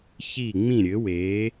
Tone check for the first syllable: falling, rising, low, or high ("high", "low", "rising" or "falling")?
falling